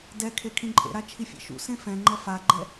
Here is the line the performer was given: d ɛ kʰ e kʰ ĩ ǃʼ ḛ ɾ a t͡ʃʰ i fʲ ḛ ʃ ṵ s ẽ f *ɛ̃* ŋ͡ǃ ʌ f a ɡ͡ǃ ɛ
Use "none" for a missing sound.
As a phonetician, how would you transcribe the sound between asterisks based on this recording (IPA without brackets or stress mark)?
ɛ̃